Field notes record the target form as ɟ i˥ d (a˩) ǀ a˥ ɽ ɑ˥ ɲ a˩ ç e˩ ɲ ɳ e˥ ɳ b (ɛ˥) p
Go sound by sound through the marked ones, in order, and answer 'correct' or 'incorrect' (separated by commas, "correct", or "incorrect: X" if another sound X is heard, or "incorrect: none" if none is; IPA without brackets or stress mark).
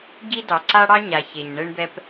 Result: incorrect: ɑ˩, correct